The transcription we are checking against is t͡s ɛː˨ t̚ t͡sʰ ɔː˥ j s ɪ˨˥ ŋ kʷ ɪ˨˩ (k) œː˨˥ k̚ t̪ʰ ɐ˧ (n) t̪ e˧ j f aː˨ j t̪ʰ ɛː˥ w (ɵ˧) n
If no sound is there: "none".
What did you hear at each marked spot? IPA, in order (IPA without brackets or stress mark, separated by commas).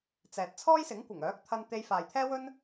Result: ŋ, n, ɵ˥